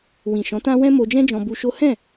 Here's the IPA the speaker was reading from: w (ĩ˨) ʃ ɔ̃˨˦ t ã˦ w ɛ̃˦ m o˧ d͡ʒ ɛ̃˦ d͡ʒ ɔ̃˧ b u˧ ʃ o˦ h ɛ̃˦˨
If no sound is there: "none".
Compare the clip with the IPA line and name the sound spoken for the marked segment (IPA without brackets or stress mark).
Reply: ĩ˨